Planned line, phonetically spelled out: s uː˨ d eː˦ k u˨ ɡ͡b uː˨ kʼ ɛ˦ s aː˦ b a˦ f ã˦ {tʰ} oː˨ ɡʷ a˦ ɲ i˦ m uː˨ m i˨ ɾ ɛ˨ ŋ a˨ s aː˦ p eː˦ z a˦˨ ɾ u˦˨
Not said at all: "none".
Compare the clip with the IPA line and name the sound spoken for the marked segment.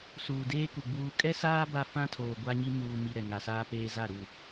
tʰ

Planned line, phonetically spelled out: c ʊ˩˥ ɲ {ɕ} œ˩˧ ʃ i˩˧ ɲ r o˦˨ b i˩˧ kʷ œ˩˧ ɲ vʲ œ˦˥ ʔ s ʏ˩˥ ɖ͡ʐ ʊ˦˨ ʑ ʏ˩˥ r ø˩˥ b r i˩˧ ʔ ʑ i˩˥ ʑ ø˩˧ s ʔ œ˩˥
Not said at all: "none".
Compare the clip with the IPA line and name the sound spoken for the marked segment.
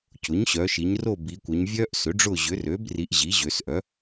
ɕ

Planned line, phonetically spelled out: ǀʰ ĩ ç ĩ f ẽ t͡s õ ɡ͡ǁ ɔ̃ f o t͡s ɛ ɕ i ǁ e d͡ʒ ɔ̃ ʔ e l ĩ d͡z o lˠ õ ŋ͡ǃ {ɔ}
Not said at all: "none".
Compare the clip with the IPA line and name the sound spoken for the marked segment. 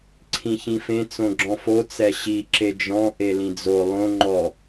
ɔ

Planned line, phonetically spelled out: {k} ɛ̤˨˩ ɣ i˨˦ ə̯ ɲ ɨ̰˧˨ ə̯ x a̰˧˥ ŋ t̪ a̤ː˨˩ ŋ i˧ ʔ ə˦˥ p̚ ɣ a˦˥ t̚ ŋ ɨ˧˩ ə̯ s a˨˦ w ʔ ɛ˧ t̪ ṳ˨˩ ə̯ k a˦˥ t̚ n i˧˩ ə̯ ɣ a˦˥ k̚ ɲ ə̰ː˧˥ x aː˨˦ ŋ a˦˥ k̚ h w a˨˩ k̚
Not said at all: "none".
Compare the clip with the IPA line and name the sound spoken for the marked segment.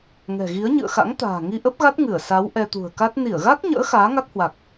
ŋ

